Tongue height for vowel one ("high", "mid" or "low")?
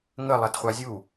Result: mid